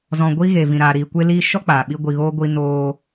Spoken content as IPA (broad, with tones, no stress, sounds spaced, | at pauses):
z ɔ̃˨ ɡʷ i˧ ɣ e˨ v ĩ˨ ɾ aː˨ ɾ iː˨ kʷ e˧ l iː˧ ʃ ɔ˦ k͡p aː˨ ɓ i˧ ɡʷ i˨ ɣ oː˧ ɡʷ i˧ n oː˧